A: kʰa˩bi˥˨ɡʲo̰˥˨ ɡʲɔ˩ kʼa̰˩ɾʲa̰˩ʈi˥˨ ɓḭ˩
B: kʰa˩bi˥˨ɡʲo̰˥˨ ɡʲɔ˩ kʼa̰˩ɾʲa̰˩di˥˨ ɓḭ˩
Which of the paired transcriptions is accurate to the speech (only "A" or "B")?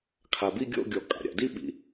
B